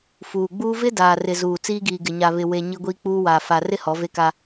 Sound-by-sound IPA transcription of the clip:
fuː˨ɡ͡buː˦ vɪ˦daː˨rɪ˨zuː˨ t͡siː˦ɡiː˨ɡɪ˨ ɲa˨βɪ˨we˨ ɲi˦ɡʷiː˦k͡puː˦waː˨ fa˨rɪ˦ hɔ˨˦ve˦ka˦

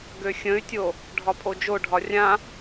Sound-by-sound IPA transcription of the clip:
ɡøxʲə̃y̯tʲo | ɖʱɒpʼod͡ʒoɖʱɒ rʲã

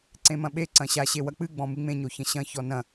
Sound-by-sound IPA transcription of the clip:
ǀẽmɐ̃ɓe ǀɐ̃ɕa ɕewɐk͡pɨ ɡ͡bɔ̃mɨŋ͡mẽ ɲoçɐ̃ɕɐ̃ çɔnɐ̃

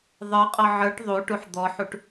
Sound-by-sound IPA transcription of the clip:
ðˤə˞qʼɔ ʕə˞ʈ ðˤuʈuħ d̪ɔħuʈ

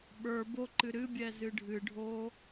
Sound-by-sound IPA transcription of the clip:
ɓə˞ boǃɨ ɾɨbʲɛ zɨɖʱɨɖʱo

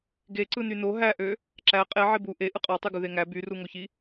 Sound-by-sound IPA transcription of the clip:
ɡe ǀɯnyno ɦæʔø | ǁæ qʼe ʕebu ʔe ʔɯqʼɑtˤyɡu ðeŋæ byruŋoçi

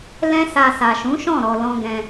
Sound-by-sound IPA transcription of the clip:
lɛ̃˦sa˧ sa˨ʃũ˨˦ ʃɔ̃˦˨ ɾɔ˧lɔ̃˦ ɡɛ̃˧

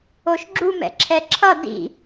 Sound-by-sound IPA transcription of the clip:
oʃɡ͡ǁum ɛ̰ǁʰɛǁʰʌ dḭ

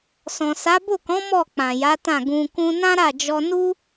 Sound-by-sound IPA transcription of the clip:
sɔ̃˨sa˨˦ bo˦˨kɔ̃˨˦ mɔ˦˨ k͡pã˨ja˨˦tã˦˨ ɡũ˧ kũ˧nã˦ɾa˦˨d͡ʒɔ˧ nu˦

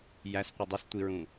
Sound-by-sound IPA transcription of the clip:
jæsqʷɯ dˤøstʷiɹũ

